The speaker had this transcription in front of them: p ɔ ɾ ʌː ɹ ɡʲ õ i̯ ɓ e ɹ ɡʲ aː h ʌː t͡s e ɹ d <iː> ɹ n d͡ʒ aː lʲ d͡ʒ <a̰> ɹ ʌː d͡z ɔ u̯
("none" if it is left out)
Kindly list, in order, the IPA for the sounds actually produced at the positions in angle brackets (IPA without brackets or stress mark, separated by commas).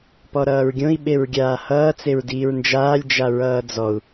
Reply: iː, a